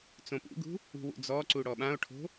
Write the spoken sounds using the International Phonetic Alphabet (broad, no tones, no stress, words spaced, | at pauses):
t͡sõpṵɡṳ | ṳwṵd͡zɔǀu ɽɔɓão̯ʈʰo̤